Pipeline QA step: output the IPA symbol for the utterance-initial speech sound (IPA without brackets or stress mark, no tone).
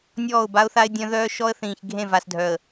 nʲ